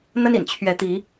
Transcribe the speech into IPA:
n̪ ə˦ n ḭ˨˩ n t͡ɕʰ ɥ ɛ˨˦ t̪ i˨˦

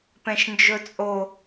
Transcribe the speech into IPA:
p ɛ̃ ʃ n d͡ʒ ɵ t͡sʼ o

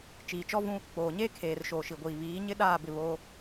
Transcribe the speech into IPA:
t͡ʃ iː˨ t͡ʃ ɔ˦ v ũ˦ | k͡p oː˨ ɲ eː˦ kʰ eː˨ r ʃ oː˨ ʃ i˨ ɡʷ iː˨ β iː˨˦ ɲ ɪ˦ ɗ aː˦˨ b ɪ˦˨ β oː˦

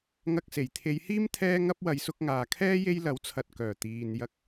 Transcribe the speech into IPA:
ŋ ɐ˧ k̚ s e˨˩ j t̪ʰ e˨˧ j h iː˥ m t̪ʰ ɛː˧ ŋ ɐ˧ p̚ w ɐ˨˧ j s ʊ˧ k̚ ŋ aː˨ kʰ ɛː˥ j e˧ j l ɐ˨˥ w t͡sʰ ɐ˨ t̚ k œː˨˩ t̪ iː˨ n j ɐ˥ k̚

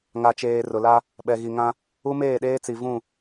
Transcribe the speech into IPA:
ŋ a˨ t͡ʃ eː˨ r ʊ˨ l a˦ | ɓ ɛ˨ ɣ i˨ ŋ ã˦ | u˦ m eː˦˨ ɗ eː˦ t͡s i˨ v ũ˦˨

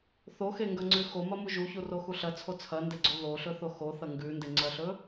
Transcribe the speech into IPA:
θ o x e ŋ ɡ ɐ ŋ͡ǀ ʉ x o m ɐ m u ʒ u ç u r o x u ɬ ɐ t͡sʰ o t͡sʰ ɐ n d e ɡ͡ǀ o ð o ɬ ɵ θ o x o θ ɐ ŋ ɡ ʉ n d e ŋ͡ǀ ɐ ɬ ɵ

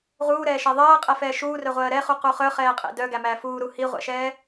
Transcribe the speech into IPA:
ʁ uː ɾ ɛː ʃ ɛ ðˤ ɜː qʼ ɛ f ɛː ʃ uː r œ ʁʷ ɜː ɾ ɛ χ u q u χ œ χ ɛː qʼ ḛ d œ ɡ æ m æː f uː ɾ u h i ʁʷ ɛ̰ ʃ ɛː

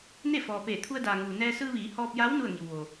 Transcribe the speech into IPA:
n e˥˨ f ɔː˩ p eː˧˩ t̪ʰ u˧ ə̯ d aː˩ ŋ uː˩ n ɛː˧ s ɯː˧ ʋ iː˩˧ h ɔː˧ p̚ j a˧˥ w n u˥˨ ə̯ ŋ i˩ w ʋ o˩

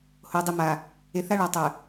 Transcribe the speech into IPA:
h o˨ dˤ i˨ m a˨ | e˨ θ a˦ ɭ ɑ˨ tˤ œ˨

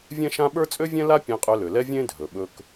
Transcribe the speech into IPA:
vʲ ɛ̃˥ ʃ ã˥ ɓ ə˞˥ t͡sʼ ø˥ vʲ ɛ̃˥ l a˥ pʲ ẽ˧ qʼ ø˧ l ø˩ l ɛ˥ vʲ ẽ˥ dʱ ɵ˩ ɓ ɵ˧ k

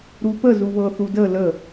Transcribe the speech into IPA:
ɾ u p ə z u β ɤ θ u d ə l ə

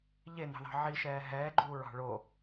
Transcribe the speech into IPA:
ʎ e n ɑ̤ ð ɑ̤ ʕ i ʃ ɛː ɦ ɛː ɡ͡ǃ uː ɹ ɑ̤ ɭ o

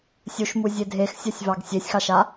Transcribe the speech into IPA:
sʲ u ʃ m u zʲ e dʱ e x sʲ a sʲ v ɑ ɡ sʲ e sʲ x ɑ ʃ a

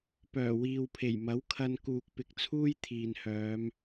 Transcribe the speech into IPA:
p œː˨˩ w iː˨ w pʰ e˨˩ j m ɐ˨˥ w kʰ ɐ˧ n k uː˨ k̚ p ɪ˨˥ k̚ t͡sʰ uː˥ j t̪ʰ iː˨ n h œː˨˧ m

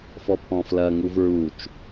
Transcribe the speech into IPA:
f ɔ pʰ ɔ̃ f l ɐ ŋ u v ɹ u t͡ʃ

